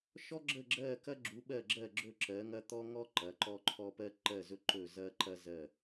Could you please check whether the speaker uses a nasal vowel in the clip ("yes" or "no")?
no